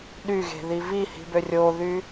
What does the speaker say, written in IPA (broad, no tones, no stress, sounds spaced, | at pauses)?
ɗ y ɣ e̤ ð i v i h i̤ b ø rʲ o ð y